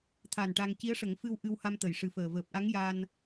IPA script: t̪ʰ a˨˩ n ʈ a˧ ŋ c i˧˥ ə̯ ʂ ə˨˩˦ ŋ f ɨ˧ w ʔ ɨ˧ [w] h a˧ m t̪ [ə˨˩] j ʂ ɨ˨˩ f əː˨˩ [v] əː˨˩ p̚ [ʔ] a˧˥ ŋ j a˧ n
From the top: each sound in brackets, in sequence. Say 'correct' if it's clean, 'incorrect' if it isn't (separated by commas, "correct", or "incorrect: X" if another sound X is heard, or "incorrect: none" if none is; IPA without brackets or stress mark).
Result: correct, correct, correct, correct